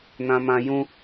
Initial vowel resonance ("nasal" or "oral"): nasal